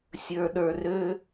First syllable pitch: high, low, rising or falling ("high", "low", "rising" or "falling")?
low